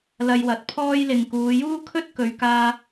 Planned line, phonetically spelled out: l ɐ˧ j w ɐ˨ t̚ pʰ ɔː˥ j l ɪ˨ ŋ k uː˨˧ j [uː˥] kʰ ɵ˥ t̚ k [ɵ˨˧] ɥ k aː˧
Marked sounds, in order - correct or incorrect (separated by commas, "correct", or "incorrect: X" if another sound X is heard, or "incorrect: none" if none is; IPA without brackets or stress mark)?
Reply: correct, correct